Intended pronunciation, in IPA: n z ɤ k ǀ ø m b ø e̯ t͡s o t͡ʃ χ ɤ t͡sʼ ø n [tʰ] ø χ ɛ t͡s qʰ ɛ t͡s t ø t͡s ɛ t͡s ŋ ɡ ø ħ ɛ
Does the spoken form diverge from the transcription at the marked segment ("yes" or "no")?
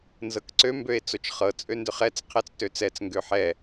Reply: yes